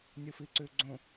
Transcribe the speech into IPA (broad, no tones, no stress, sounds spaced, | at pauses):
nʲ u f i ǀ ʉ ɡ͡ǀ õ